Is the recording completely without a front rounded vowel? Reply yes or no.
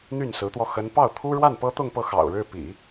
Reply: no